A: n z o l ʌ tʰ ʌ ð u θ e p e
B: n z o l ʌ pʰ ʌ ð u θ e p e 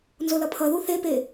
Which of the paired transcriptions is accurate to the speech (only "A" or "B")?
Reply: B